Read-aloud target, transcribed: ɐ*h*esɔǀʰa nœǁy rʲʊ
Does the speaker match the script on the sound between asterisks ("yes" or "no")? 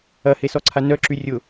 yes